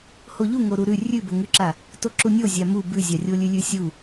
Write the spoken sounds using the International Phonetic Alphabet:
hoʎu ŋoɾuɾʉ rʲʉboŋʉǁa | toǁunʲozʲa mu bʉzʲarʲo lʲʉlʲʉsʲu

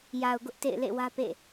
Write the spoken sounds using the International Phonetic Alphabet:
ja˨ʊ̯ɡʊ˦ʔ tḛ˦˨ɪ̯lḛ˦˨wä˦ pḛ˦˨

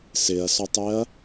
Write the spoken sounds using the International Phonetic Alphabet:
sɪɐ̯sɔtˤɪɐ̯

